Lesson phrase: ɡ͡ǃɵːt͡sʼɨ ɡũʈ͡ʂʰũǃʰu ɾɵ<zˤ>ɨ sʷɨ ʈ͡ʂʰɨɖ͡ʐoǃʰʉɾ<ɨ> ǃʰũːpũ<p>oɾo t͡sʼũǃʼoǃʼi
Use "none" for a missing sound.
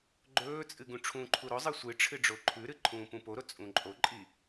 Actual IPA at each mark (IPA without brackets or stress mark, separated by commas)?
zˤ, ɨ, p